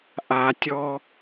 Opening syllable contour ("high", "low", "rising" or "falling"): low